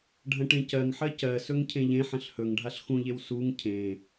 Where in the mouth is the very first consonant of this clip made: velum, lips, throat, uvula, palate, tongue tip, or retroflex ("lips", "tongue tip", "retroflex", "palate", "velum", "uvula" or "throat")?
retroflex